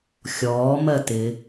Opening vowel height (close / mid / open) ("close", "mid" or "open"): mid